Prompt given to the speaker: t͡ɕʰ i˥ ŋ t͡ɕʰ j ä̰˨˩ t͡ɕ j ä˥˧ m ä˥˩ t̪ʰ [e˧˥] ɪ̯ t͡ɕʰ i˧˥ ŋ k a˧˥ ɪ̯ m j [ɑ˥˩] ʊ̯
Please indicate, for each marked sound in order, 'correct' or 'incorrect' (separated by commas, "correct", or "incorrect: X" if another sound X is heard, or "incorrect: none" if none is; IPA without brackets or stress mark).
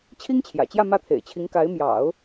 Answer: incorrect: ḛ˨˩, incorrect: ɑ̰˨˩˦